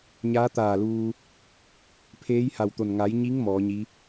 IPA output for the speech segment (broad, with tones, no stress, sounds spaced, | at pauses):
ɲ aː˧˥ t̪ aː˧˩ l uː˧ | pʰ eː˧˥ j h a˧˩ w t̪ o˧˩ n ŋ a˩˧ j ɲ i˧˥ ŋ m ɔː˩˧ ɲ i˧˥